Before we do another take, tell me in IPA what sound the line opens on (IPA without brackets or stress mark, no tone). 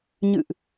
ɲ